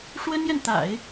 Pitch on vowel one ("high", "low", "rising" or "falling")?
high